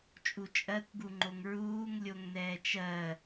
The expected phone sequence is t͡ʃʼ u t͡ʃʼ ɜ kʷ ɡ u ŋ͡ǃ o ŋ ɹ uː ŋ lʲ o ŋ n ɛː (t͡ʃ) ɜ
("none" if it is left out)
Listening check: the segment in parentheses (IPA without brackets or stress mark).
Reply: t͡ʃ